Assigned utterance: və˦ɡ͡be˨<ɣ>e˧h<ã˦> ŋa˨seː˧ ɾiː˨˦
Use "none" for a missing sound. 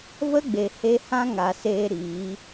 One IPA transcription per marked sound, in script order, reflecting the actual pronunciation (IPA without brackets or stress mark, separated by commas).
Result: h, ã˦